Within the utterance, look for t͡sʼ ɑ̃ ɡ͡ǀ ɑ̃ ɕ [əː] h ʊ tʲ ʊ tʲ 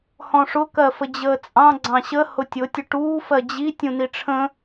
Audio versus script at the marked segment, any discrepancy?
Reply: yes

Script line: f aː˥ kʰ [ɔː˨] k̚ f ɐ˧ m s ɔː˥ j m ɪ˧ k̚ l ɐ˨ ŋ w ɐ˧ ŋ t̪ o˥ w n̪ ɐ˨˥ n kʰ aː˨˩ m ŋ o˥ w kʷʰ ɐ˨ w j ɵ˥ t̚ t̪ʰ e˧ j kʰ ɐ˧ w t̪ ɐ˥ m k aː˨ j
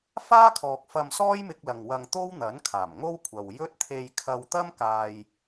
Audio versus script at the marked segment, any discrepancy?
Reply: no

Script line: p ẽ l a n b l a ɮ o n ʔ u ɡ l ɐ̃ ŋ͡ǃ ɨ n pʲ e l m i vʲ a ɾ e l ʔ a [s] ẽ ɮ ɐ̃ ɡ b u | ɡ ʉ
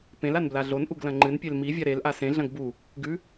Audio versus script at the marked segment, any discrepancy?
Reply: no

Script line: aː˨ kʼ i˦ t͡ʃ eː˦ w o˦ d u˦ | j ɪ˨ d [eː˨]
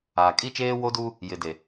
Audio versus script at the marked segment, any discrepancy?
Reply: yes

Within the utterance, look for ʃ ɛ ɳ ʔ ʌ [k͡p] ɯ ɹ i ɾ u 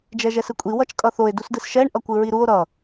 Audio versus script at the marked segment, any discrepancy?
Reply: yes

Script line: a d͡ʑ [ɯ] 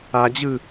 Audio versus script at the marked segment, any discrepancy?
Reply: no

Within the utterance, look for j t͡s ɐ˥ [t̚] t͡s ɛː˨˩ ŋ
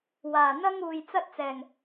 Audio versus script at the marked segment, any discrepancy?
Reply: no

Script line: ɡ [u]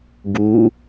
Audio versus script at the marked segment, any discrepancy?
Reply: no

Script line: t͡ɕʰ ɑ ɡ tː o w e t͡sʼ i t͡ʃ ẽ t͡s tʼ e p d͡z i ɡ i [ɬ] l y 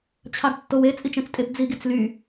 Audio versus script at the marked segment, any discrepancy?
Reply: yes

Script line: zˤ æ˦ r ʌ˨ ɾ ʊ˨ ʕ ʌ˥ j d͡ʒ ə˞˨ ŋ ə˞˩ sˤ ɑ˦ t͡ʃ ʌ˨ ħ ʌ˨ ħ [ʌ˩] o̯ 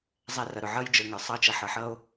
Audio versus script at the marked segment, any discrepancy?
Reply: yes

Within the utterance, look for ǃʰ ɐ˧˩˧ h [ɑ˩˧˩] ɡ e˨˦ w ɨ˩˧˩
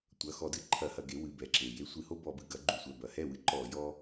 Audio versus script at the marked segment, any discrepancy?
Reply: yes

